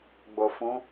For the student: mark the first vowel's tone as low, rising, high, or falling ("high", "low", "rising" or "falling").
low